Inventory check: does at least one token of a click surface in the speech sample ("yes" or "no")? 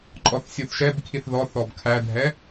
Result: yes